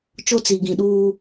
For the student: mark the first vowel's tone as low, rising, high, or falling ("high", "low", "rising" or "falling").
high